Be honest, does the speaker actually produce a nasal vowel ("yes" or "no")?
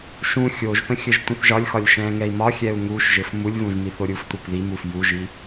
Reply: yes